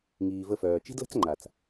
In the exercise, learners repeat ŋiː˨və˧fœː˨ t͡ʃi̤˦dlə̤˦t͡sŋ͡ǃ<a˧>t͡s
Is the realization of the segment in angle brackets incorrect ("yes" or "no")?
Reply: yes